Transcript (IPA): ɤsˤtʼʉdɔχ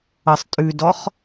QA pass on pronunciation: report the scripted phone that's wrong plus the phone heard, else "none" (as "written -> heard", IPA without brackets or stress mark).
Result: none